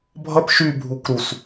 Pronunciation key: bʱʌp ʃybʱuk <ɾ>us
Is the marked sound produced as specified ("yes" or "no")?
yes